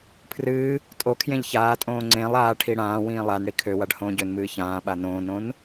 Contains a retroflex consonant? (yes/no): yes